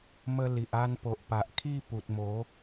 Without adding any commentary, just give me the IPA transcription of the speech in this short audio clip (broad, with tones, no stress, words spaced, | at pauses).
mə˧ li˨ʔa˧n po˨ʔpa˨ʔkʰi˥˧ pu˨t̚mo˨˦